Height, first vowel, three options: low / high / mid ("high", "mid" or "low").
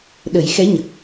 mid